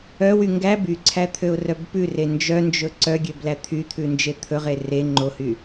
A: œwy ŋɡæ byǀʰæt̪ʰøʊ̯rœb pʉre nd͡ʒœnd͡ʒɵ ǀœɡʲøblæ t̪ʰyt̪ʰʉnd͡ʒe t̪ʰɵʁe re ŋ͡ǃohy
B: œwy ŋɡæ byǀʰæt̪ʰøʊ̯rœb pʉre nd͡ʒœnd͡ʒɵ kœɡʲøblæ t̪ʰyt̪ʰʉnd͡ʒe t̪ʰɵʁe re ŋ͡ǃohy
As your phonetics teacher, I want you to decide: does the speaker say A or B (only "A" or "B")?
A